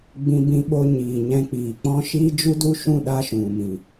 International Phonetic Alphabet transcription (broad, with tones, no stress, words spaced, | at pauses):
ɡ͡bĩ˧bĩ˧ɓo˧ɲiː˨ ɲɛ̃˧k͡piː˨k͡pɔ̃˦ ʃiː˦ d͡ʒu˦du˦ʃũ˦˨ ɗa˦ʃũ˨mĩ˨